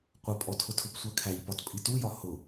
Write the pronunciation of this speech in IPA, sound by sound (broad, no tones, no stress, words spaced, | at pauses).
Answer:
qʷʌpʼɔtʰʊtʰʊp sʷɜkʰæʎpɒtpʼi tujɒ hʊ